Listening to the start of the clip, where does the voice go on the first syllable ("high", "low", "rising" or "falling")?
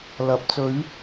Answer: rising